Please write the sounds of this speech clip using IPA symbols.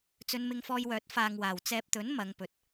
t͡sɵ˧nmɪ˧ŋfɔː˧jwœː˨˥t̚ faː˧ŋwaː˨w t͡sɛː˧p̚t̪ɵ˨˥n mɐ˨˧ŋpɵ˨t̚

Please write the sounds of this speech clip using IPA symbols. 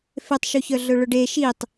fetˤʃuçœɮɵ ɭʊɖe ʃitˤ

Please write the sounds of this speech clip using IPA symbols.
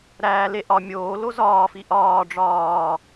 ɾæː le ʔɒ mʲoːlo zɒːfi ʔɒː ɖ͡ʐɒː

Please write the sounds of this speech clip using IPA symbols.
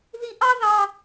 ði˧ʔɑ˦ ðɑ˦

